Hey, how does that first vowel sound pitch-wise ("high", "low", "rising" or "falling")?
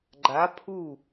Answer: rising